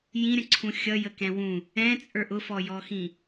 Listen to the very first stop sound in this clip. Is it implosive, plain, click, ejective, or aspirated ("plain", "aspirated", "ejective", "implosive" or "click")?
click